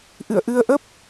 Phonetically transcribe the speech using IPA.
ʔɨ̰˧˨ə̯ʔɨ˧ə̯ʔə˦˥p̚

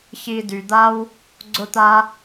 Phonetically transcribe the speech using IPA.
çi˨ dy˩d̪a˥w | ɡ͡ǀʊ˥t̪a˥

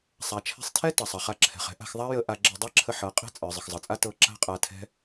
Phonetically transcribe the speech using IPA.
sˤa˨t͡ʃʰɛ̤˧sˤtʰɛ˦ tɐ˨sˤɐ˨χa˧ǁʰɛ̤˨χ ɛ̤˦ʔa̤˧xðˤa˦ jə˧ ʔa˧ɡ͡ǁə˧ dˤɛ˦ǁʰə˧ ħɤ˨˦ qʼɛ̤˦ t͡sʼə˞˨ zˤə˨xzˤɤ˨t͡sʼa˦ tɤ˧ ǁa̤˦qʼa˧tʰɛ̤˦

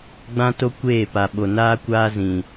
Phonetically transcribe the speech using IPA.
ɡ͡bã˦to˦kʷeː˦˨pa˨ ɓo˨naː˦kʷaː˦zĩ˨

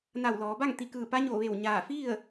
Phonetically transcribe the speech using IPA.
na˧˩wlɔː˩˧ba˥˨ŋ t̪i˧˩ kɯː˧˩pa˧˥ɲoː˧˩ ʋe˧˩wɲaː˧˩fi˥˨ə̯

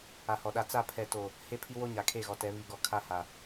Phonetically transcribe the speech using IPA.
a˨hɔ˨ɗa˦ t͡sa˦˨pʰɛ˨to˨ | he˦pʰi˦ wo˦ɲa˨kʰe˦˨ɣɔ˨ tɛ˨˦ βi˨ɡɔ˨ kʰa˦ha˨

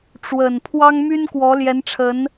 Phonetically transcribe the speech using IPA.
ʈ͡ʂwə˨˩n pʰwɑ˥ŋmy˥nkwɔ˧˥ ljɛ˧˥nʈ͡ʂʰə˧˥n

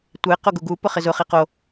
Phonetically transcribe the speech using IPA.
tʷe qoɡuɡu pʊχɪzʊ χiqo

